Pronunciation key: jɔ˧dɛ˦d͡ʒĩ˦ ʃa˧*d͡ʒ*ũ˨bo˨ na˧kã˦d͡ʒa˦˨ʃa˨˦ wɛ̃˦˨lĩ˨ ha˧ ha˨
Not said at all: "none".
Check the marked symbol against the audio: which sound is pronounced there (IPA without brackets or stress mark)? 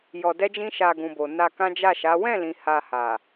ɡ